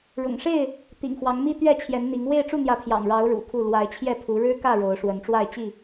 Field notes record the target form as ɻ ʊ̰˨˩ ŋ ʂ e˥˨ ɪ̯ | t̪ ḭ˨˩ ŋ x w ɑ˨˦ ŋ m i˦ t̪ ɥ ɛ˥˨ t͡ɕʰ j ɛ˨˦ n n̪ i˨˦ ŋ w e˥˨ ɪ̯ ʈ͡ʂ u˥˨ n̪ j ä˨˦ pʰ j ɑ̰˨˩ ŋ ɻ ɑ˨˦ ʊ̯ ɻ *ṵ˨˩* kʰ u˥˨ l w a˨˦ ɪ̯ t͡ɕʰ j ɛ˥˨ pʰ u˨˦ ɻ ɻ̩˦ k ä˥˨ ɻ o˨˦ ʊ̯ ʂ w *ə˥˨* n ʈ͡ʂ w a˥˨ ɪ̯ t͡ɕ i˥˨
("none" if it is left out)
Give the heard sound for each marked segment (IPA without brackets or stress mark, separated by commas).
ṵ˨˩, ə˨˦